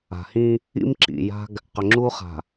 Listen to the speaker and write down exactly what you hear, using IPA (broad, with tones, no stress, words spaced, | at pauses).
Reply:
a̤˨hĩ˦ | ḭ˦mǁḭ˨ja̤˦ɡ | qʏ˨ŋ͡ǁu˦χa̤˨